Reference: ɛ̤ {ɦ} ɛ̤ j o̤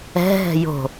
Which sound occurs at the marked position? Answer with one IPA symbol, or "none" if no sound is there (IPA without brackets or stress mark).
ɦ